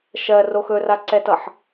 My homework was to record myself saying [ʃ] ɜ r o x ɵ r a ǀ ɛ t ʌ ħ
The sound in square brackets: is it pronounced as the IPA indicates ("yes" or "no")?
yes